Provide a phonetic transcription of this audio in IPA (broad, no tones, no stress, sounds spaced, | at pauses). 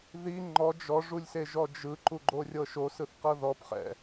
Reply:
ð i ŋ͡ǃ ɔ d͡ʒ ɔ ʐ u lʲ s e ʒ ɔ d͡ʒ ɯ ǃ u ɡ͡ǃ o rʲ ɤ ʃ o s ɯ θ q ɤ ð ɔ p χ ɛ̰